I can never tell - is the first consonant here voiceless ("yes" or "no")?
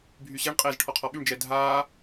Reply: no